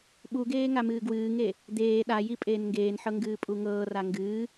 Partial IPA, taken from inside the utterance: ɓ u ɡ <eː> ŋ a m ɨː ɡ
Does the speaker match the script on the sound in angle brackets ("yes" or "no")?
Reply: yes